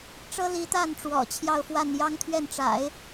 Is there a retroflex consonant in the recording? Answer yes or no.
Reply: yes